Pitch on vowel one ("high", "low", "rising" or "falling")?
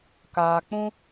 low